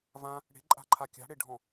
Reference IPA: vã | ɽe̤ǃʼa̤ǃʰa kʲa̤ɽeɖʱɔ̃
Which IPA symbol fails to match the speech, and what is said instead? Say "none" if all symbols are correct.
none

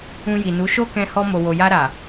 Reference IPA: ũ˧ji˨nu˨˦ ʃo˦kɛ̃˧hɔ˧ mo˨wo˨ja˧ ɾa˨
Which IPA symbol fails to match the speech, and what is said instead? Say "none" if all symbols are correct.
none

